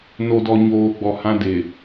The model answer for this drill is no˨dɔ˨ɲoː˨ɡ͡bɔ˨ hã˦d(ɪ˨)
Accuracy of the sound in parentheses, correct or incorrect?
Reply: correct